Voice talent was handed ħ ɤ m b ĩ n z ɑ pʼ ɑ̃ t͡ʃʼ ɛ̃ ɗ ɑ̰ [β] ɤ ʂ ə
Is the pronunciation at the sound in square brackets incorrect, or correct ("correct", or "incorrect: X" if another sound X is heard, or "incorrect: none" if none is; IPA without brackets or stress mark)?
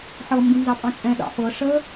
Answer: incorrect: f